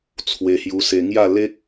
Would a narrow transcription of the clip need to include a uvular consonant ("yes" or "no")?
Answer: no